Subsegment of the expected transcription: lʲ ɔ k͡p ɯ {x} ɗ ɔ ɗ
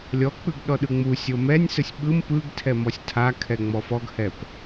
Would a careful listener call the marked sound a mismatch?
yes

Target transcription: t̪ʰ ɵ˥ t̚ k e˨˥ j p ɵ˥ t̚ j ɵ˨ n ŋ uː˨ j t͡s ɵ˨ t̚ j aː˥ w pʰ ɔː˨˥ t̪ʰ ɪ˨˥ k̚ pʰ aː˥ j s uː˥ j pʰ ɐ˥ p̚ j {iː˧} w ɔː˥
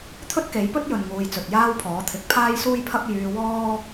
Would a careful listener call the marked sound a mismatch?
yes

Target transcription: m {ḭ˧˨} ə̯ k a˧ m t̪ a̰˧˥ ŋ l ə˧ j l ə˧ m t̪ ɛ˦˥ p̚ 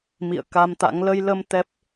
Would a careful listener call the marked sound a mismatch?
no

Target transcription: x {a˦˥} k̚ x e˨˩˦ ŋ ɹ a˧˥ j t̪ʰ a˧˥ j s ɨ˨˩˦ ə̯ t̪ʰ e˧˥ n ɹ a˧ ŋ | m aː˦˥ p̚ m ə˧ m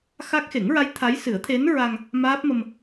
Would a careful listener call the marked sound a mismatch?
no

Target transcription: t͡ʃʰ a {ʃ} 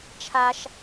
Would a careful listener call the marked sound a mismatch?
no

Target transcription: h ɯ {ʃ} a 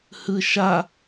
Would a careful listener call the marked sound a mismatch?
no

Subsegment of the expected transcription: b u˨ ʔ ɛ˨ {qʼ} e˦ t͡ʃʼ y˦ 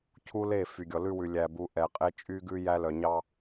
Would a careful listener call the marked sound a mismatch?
no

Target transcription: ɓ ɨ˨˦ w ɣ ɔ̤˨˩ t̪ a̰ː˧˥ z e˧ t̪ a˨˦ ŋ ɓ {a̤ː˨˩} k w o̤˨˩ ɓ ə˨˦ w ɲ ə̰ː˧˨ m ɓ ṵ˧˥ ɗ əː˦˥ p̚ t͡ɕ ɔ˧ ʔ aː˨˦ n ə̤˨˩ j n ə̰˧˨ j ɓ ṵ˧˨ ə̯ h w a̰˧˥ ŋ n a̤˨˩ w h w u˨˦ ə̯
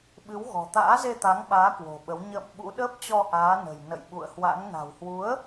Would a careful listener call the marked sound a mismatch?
yes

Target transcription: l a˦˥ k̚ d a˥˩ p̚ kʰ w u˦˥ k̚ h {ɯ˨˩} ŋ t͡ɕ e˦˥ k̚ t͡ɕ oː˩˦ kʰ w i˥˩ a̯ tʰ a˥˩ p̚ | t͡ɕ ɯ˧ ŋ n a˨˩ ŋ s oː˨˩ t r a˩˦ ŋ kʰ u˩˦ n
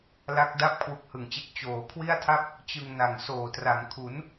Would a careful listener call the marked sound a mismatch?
no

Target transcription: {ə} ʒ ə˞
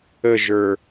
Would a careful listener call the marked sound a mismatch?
no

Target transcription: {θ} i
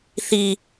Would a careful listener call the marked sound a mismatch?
no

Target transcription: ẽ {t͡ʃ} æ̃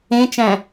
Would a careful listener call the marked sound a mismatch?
no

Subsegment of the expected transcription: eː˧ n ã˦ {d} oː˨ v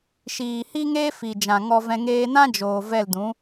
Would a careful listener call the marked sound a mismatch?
yes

